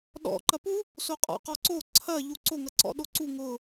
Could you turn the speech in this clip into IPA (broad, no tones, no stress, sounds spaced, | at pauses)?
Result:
ɗ ɔ̰ ǃ ɐ p u | s o qʼ ɔ̰ q ɔ ǀ o ǀʰ ɐ ʎ u ǀ o ŋ ɐ ǀ ɔ̰ ɗ o ǀ u ŋ ʊ